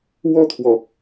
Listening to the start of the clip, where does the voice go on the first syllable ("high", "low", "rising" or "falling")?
falling